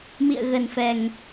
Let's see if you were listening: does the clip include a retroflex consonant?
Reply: no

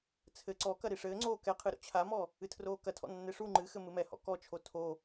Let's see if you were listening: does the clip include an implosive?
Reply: no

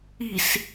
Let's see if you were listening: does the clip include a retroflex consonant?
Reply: no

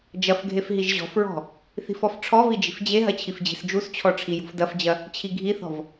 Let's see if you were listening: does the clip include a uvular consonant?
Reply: no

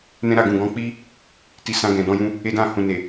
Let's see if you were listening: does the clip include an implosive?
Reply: no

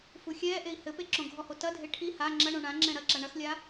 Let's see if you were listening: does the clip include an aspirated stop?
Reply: yes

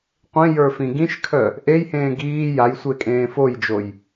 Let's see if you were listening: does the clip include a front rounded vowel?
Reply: yes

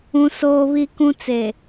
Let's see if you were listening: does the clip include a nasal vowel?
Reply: yes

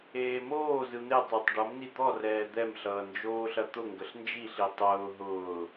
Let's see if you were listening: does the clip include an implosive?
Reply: no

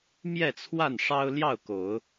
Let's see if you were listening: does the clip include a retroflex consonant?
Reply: yes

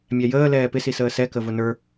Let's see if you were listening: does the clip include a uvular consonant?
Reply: no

